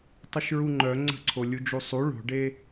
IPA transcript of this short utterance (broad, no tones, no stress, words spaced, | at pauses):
tˤəʃɹuŋ͡ǃœ ŋ͡ǀə̤ǀʰo lʲud͡ʒusˤu ɭo̤ɖe